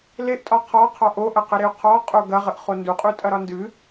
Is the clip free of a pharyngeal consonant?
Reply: yes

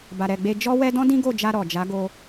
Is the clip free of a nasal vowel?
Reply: no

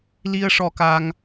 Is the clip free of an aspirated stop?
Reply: yes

